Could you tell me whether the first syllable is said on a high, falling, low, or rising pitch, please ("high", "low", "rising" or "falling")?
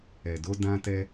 low